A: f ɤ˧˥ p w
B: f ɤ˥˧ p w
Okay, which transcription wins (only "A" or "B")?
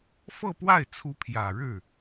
B